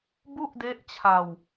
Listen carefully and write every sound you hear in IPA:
b u˥˩ ʔ d e˦˥ ʔ t͡ɕʰ a˧ w

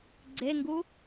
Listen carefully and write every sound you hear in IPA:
ɡ͡ǀ e ŋ ɡ u

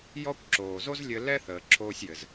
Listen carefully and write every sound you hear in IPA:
j ɔ˦ kʷ ǁ oː˨ z o˦ z lʲ ɘ˧ l ɛ˦ θ əː˨ ǁʰ oː˧ sʲ j ɘ˨ z

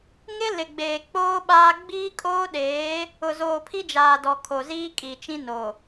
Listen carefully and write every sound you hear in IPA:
ŋ ɪ˦ l ɪ˨ ɡ͡b eː˨ k͡p oː˦ ɓ aː˦ ɡ͡b iː˦ kʼ oː˦ ɗ eː˨˦ | ʊ˨ z oː˨ pʰ i˦ d͡ʒ aː˨ d ɔ˨ kʰ o˨ z iː˦ kʼ i˨ t͡ʃ ĩ˦ n o˨

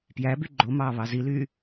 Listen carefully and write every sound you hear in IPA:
p j æ b y ɡ͡ǃ o m ɑː β ɑ z i l yː

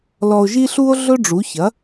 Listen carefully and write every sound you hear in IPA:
l ɔ˧ o̯ ʒ i˥ ɬ u˥ o̯ ɮ ɵ˥ ɖ͡ʐ u˩˥ ç ɐ˩˥

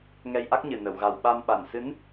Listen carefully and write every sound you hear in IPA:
ŋ ɛ˧ j ʔ a˦˥ k̚ ɲ ɨ˨˩ n ə˨˩˨ w ɣ a˨˩ w ɓ a˧ m ɓ a˨˩ n s ɨ˧˥ n

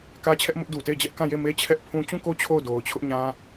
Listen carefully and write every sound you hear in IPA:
k ä˦ t͡ɕʰ ɛ˦ ʔ m ʊ˦ ʔ d u˨ t e˦˨ ɪ̯ d͡ʑ ɛ˦ ʔ k ã˦˨ j e˦˨ m e˦ t͡ɕʰ ɛ˦ ʔ pʰ ũ˦ t͡ɕ ũ˦˨ k o˦ t͡ɕʰ o˦˨ ʊ̯ d o˨ ʊ̯ t͡ɕʰ ʊ˦ ʔ ɲ ã˦

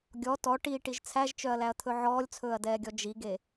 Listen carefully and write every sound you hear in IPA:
ɡʲ ɔ t ɔ ʈ iː ʈ i ʒ t͡sʰ æ ʒ t͡ʃ œ ɐ̯ l æ ɐ̯ t̪ʰ ɵ ʕ ɔː lʲ t͡sʰ ɵː ɐ̯ d ɛː ɡʲ ɔ d͡ʒ i ɡ e

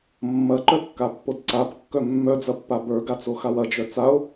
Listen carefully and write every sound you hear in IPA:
mː ɐ ǃ œ kː a pː o d ǀ a b kː œ mː œ d͡z ɐ pː a b ə˞ ɡ a t͡s o x a w ɐ d͡ʒ œ t͡s a o̯

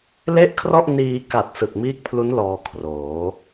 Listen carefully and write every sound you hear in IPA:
l e˥˩ ʔ kʰ r ɔ˥˩ ʔ n iː˧ k a˨˩ t̚ s ɯ˨˩ k̚ m iː˦˥ k̚ pʰ l u˦˥ n l ɔː˧ kʰ r oː˩˦

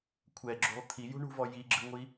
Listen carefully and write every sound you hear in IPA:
kʷʰ ɛ ɡ͡ǁ ṳ lˠ t̪ʰ i j ṳ ɳ ṳ v ɔ j i ɡ͡ǁ ɯ ŋʷ i

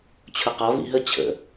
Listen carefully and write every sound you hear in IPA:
t͡ɕʰ ʊ q ɒ v ḭ ɦ ə t͡ɕʰ ə̰

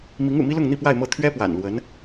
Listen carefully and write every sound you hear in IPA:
m i˧˥ ŋ ṵ˨˩ m i˥ l ʊ˥˧ ŋ n̪ i˥˧ p w a˥˧ ɪ̯ m ɤ˥˩ t̪ʰ ɥ ɛ˥ p w a̰˨˩ n l w ə˧˥ n

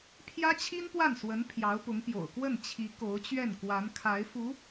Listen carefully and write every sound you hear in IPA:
pʰ j ä˥ t͡ɕʰ i˥ n p w a˥˩ n s w ə˧˥ n pʰ j ɑ˧˥ ʊ̯ p ʊ˧˥ ŋ p j o̰˨˩ ʊ̯ k w ə˥˩ n t͡ɕʰ i˧˥ k o˧˥ ʊ̯ t͡ɕ ɥ ɛ˥˩ n k w a˧˥ n kʰ a˧˥ ɪ̯ f u˧˥

